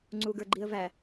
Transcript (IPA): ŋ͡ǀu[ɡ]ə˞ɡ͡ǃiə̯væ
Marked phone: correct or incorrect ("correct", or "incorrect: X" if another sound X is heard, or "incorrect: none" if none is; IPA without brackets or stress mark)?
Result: correct